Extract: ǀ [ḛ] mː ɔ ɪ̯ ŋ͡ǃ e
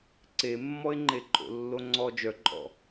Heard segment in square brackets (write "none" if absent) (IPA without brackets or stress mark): e